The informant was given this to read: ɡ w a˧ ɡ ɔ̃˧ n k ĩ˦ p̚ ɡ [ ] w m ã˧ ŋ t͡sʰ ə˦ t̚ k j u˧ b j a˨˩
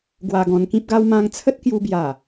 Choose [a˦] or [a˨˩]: a˦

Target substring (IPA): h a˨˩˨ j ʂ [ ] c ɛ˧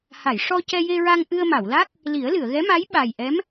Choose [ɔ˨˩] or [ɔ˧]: ɔ˧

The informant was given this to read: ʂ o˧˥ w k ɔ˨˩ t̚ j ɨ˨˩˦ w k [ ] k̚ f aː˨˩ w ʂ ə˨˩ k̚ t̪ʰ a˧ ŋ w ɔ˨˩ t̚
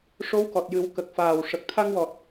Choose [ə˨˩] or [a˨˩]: ə˨˩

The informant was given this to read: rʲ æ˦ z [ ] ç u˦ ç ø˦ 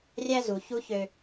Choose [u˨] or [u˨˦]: u˨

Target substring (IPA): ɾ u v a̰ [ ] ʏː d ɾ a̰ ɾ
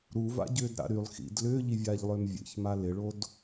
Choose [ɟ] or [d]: ɟ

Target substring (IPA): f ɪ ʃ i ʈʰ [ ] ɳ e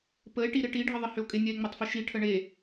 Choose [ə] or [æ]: ə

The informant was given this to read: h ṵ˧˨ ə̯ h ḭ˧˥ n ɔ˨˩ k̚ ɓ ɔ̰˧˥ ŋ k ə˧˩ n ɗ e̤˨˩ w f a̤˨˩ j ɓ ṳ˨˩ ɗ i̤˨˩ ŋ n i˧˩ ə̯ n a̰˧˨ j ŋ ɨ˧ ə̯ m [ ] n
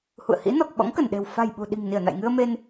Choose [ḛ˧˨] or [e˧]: e˧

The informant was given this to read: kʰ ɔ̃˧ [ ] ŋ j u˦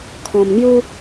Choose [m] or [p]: m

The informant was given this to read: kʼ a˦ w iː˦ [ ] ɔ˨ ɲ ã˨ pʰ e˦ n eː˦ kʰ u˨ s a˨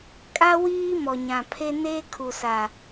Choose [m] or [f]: m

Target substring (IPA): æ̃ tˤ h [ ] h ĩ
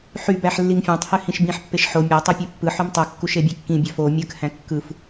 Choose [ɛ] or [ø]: ø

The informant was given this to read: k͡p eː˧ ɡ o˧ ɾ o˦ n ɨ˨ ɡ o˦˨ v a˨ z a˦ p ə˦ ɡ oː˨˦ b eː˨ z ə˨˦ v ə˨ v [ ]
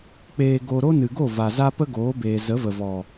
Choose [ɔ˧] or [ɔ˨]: ɔ˨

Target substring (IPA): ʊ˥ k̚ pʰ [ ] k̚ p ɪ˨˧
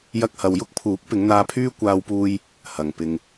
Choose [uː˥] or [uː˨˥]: uː˨˥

